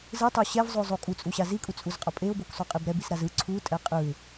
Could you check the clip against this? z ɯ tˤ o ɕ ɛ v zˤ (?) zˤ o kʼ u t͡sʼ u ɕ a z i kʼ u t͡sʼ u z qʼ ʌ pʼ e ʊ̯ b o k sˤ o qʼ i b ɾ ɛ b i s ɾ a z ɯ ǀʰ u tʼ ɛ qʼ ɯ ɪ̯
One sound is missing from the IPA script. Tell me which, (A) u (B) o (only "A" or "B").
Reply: B